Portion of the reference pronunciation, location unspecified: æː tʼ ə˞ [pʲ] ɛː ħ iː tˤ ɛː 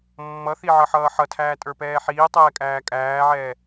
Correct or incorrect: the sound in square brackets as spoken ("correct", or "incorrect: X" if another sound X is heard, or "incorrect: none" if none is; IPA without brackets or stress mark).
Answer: incorrect: p